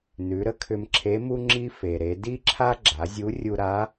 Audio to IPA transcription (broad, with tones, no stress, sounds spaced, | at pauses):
n ʉ˩˧ ɾ ə˥ kʰ ʏ˧ m ǁʰ e˧˥ m u˥ ŋ͡ǁ i˥ f e˩ ɾ e˩˧ d i˥ ǁʰ a˥ ɡ͡ǁ a˩˧ zʲ u˧˥ rʲ u˧ ɾ a˧˥